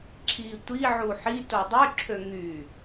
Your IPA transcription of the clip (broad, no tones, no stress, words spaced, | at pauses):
ǁʰi tʷiʕu ħi todˤyǁʰø ŋy